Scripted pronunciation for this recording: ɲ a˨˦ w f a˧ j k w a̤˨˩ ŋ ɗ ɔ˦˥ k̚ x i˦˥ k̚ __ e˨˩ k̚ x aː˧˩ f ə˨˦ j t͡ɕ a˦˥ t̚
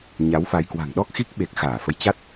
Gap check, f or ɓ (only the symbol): ɓ